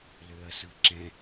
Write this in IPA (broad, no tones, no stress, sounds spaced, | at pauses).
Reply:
l ø ɐ̯ s ɯ ǁ ɛ̃